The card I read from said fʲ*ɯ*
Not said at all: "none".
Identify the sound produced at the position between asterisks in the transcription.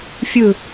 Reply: ɯ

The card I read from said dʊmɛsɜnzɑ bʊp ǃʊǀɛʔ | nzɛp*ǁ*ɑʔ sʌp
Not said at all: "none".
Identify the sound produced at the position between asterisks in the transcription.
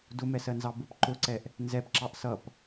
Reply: ǁ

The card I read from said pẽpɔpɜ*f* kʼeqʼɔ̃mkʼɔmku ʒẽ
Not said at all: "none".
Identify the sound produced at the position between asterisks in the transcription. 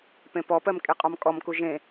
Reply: m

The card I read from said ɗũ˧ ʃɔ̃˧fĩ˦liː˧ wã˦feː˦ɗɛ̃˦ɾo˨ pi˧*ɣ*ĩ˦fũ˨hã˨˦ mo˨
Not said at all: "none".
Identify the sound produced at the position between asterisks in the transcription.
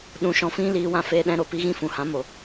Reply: ɣ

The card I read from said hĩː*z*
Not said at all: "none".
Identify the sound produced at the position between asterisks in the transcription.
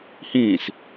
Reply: s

